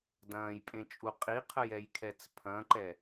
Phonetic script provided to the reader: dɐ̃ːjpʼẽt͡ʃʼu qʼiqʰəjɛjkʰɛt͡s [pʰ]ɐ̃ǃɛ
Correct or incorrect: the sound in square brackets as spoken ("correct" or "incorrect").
correct